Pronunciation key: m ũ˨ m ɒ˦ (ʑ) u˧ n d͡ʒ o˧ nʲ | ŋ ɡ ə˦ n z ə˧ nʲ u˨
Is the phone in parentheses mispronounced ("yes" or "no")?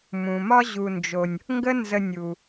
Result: no